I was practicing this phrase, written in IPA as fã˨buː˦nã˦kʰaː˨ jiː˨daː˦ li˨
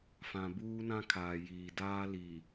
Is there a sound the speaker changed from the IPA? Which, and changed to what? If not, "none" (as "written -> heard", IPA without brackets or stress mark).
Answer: none